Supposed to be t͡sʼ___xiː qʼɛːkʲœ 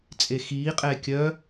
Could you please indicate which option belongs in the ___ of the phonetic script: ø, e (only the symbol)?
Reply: e